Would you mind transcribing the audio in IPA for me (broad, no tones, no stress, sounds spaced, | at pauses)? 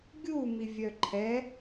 ɡʲ u m i vʲ œ ǃʰ ɛ